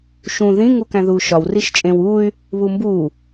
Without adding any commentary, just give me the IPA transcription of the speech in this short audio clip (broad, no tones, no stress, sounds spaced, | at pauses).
ʃ ũ ð ĩ ŋ u k æ̃ ð uː ʃ ɒ w r i ʃ t͡ʃʼ ẽ w uː y̯ | β u m b uː